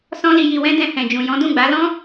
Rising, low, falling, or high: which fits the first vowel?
high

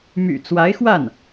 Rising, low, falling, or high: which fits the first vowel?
low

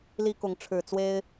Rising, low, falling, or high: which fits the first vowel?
high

